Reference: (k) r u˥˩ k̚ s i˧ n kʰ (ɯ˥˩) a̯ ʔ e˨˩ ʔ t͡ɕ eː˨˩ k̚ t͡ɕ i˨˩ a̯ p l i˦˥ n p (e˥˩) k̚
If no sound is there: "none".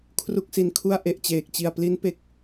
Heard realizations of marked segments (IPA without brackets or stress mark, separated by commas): kʰ, u˥˩, e˨˩